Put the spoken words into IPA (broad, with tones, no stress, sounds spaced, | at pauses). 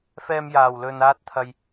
f ɛː˧ m j aː˨˩ w l ɵ˨ n aː˧ t̚ t̪ʰ ɐ˨ j